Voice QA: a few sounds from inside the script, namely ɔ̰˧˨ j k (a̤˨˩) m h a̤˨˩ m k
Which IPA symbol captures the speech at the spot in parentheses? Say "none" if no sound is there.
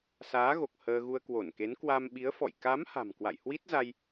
a˨˦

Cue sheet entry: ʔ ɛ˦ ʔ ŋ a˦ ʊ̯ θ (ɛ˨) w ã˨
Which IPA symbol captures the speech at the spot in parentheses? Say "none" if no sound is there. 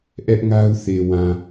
e˨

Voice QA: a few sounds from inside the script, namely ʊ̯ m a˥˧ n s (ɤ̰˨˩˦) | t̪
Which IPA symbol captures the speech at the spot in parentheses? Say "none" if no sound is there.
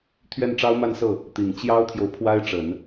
ɤ˥˩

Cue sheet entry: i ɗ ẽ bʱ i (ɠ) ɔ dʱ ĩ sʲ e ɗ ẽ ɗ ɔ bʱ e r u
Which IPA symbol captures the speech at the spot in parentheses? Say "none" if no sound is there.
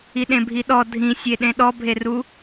ɗ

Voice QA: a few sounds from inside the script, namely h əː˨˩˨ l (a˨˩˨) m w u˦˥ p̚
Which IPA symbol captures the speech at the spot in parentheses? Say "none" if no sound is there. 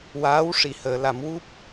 a˨˩˨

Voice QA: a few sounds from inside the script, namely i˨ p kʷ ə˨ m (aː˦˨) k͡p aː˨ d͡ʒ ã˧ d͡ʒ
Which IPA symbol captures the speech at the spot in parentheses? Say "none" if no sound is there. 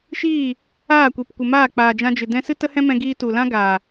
aː˦˨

